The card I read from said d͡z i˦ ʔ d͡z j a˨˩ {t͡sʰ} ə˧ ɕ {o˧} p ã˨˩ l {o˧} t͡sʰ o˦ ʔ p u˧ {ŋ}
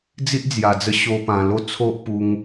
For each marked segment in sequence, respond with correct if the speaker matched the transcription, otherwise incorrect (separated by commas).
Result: incorrect, correct, incorrect, correct